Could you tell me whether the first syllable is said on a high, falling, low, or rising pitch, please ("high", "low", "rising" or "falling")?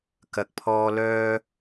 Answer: low